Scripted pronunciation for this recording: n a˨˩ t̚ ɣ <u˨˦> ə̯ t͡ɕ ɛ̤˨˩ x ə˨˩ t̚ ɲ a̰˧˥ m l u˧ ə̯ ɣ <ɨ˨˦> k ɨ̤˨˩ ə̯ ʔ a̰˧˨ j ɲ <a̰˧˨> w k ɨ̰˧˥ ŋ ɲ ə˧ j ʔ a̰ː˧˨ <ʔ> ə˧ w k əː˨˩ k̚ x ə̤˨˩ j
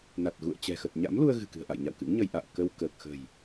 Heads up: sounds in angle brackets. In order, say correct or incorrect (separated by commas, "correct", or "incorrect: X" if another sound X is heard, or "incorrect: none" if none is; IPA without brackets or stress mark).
incorrect: ṵ˧˨, incorrect: ɨ̤˨˩, correct, incorrect: k